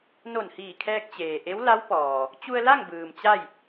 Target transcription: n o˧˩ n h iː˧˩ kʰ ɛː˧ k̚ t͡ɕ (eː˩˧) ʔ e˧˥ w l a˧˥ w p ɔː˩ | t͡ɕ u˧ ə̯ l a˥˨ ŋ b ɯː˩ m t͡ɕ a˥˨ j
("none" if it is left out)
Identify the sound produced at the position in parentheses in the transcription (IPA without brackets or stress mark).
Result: eː˩